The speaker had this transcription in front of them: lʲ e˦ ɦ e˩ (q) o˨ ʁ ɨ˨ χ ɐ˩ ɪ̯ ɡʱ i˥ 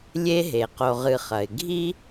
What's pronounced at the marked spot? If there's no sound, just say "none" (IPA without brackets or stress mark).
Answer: q